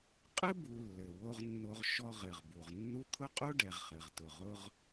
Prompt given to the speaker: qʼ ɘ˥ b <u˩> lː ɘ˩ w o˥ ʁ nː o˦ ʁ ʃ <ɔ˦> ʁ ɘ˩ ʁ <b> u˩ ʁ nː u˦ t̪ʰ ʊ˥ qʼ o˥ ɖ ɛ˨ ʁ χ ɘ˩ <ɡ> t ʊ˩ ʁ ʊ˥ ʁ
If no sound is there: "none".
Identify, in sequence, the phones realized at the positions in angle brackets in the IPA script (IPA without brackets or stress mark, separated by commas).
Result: u˨, ɔ˦, b, ʁ